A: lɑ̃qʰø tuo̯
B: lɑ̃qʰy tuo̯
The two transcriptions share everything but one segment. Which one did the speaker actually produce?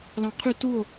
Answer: B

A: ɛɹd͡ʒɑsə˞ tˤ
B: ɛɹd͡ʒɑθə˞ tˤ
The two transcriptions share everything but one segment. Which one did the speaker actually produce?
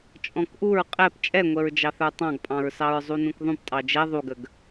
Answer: B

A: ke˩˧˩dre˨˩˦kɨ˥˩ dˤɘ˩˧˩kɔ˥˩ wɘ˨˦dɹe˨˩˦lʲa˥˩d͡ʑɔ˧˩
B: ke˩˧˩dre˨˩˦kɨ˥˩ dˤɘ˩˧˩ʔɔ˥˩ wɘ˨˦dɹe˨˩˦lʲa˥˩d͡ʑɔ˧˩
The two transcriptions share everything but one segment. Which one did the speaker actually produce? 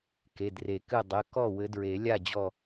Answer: A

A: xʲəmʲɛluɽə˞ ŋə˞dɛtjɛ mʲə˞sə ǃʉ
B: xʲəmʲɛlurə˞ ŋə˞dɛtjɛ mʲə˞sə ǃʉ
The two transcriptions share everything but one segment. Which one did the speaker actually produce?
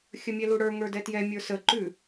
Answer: A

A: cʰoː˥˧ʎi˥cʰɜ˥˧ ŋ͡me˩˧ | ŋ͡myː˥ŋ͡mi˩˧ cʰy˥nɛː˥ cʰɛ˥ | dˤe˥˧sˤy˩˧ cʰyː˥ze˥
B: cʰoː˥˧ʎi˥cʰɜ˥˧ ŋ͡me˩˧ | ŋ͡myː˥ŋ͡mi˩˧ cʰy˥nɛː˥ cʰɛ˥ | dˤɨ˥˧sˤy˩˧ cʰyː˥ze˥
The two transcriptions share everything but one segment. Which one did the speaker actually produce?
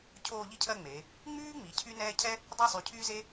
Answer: A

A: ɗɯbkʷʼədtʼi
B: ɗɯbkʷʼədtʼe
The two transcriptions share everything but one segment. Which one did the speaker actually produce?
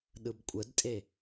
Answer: B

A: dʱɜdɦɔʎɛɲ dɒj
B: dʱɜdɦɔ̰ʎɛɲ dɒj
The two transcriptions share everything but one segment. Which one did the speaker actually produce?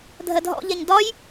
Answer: B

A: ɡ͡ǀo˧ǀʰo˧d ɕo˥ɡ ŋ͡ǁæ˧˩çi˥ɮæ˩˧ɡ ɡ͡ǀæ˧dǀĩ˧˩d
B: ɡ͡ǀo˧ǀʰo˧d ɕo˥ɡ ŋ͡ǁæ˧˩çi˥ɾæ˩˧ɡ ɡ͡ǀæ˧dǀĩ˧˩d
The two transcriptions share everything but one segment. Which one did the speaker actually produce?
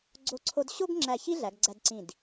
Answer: A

